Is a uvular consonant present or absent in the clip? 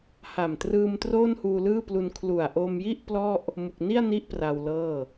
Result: absent